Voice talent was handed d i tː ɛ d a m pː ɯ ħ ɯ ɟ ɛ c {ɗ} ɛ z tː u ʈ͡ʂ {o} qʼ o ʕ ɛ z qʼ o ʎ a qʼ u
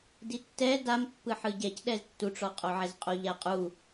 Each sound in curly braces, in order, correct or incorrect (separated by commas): correct, incorrect